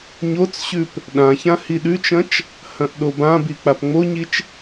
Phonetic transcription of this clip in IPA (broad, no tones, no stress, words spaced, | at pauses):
ɲot͡sɕʉp | ɗãçã hiɗʉt͡ʃɐ̃t͡ʃ | hɐ̃ʔɗobãbi k͡papŋ͡moɲit͡ʃ